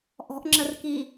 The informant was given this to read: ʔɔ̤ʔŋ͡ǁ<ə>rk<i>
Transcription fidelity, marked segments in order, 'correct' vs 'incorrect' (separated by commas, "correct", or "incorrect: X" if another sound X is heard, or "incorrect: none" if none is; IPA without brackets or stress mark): correct, correct